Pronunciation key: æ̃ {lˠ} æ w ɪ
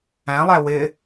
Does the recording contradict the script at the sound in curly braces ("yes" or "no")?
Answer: no